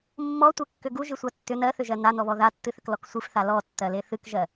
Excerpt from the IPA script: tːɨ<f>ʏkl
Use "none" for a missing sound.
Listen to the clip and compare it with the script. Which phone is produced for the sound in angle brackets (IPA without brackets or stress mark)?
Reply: θ